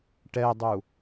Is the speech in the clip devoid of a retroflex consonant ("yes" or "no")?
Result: no